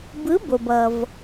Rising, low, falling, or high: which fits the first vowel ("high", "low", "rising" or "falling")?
rising